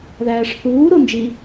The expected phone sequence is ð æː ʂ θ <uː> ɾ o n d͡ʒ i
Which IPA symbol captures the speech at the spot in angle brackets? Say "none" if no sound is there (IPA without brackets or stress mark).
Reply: uː